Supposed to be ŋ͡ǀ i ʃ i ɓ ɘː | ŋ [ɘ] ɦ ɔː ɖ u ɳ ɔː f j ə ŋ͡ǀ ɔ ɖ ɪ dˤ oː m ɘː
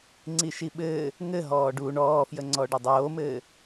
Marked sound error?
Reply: no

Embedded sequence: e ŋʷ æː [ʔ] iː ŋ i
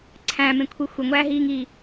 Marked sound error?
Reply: yes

